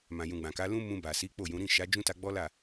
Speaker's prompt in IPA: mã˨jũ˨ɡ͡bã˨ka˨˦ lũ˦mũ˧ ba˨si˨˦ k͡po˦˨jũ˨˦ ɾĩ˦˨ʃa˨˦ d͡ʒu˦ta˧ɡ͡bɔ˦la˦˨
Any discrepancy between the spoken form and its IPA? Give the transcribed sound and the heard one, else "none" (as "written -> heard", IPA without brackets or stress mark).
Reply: u˦ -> ũ˦